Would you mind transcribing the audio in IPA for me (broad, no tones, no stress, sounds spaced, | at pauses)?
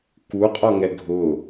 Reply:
k u qʼ ɔ ŋ ɛ ɡʱ ʊ